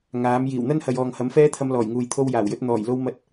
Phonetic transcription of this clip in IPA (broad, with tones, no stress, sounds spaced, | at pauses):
ŋ aː˨˥ m j iː˨˩ w n̪ ɐ˥ n h ɐ˨ j ɔː˨ ŋ h ɐ˨˥ m f ɛː˥ t̪ʰ ɐ˧ m l ɔː˨˩ j ŋ uː˨ j t̪ʰ o˧ w j aː˨˩ w j ɵ˧ t̚ n̪ ɔː˨˩ j l o˥ w m ɐ˥ t̚